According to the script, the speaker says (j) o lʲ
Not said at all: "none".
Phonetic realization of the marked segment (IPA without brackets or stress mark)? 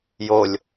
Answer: j